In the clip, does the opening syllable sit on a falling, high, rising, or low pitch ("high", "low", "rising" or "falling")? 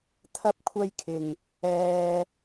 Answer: high